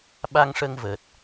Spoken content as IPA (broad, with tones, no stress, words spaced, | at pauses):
ɓa˧ŋʂə˧ŋvəː˨˩t̚